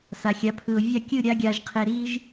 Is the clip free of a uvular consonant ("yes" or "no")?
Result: no